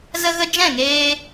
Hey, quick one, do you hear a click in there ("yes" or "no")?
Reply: no